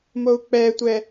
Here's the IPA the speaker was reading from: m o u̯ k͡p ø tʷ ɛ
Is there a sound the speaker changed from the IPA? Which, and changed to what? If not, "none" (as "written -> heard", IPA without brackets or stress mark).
ø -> ɛ